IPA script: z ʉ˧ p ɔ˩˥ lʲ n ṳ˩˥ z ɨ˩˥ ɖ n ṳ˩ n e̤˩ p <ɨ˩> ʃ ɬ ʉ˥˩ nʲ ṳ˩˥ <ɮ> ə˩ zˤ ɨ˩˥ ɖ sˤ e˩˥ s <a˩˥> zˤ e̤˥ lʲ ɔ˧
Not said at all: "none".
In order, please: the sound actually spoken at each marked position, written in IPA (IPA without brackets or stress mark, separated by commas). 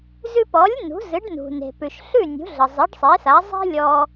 ʉ˩, ɮ, a˩˥